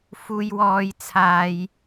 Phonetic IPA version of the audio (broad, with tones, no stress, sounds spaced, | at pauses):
f uː˧ j w ɔː˧ j t͡sʰ aː˧ j